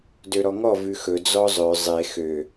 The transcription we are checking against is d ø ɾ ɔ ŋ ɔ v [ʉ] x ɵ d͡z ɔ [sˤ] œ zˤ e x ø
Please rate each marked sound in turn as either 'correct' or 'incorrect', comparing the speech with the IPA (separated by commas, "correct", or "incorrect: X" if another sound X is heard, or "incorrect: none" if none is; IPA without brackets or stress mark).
correct, incorrect: zˤ